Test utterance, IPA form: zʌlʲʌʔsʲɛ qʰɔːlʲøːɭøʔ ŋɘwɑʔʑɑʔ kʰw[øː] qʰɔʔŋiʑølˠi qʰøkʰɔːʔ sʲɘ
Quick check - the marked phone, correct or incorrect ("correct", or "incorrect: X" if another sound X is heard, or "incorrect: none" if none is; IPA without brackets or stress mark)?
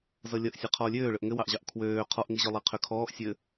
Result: correct